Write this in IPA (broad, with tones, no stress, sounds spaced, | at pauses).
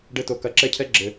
ɖ ɘ˧ t o˨ k ɐ˨˦ ǁ ɛ˦ cʰ ɛ˦ ɡ͡ǁ ɘ˨